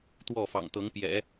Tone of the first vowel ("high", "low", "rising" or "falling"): falling